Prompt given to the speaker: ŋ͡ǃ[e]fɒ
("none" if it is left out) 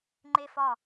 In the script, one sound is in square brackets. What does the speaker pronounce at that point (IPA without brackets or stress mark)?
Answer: e